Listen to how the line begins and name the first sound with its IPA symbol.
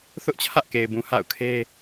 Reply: θ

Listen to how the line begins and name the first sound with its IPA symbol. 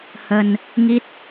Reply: h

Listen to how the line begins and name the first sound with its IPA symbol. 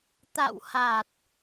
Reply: t̪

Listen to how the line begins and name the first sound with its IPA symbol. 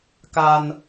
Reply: k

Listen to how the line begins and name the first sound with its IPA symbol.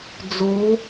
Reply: d͡z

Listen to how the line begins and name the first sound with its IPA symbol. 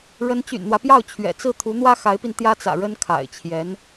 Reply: ɻ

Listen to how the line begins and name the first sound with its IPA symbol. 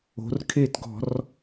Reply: o̤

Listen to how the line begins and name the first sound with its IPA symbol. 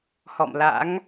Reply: h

